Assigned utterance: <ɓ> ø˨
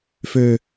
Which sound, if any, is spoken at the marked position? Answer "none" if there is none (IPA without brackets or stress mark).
f